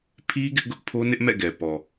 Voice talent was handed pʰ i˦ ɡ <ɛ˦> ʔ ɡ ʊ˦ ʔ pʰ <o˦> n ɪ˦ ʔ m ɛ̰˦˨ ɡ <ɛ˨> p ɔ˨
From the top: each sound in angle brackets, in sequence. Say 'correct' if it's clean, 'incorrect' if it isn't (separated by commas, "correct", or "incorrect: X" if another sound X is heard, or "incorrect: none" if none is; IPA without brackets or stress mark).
incorrect: ɪ˦, correct, correct